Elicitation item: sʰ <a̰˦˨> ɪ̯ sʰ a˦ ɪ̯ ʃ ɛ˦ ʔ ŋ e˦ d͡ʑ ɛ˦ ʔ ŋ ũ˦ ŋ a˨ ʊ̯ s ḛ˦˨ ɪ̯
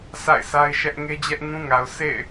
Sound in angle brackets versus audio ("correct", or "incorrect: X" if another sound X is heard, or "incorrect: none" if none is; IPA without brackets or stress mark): correct